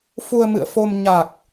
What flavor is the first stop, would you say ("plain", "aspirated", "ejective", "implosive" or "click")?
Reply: plain